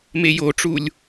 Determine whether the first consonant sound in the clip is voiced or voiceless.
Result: voiced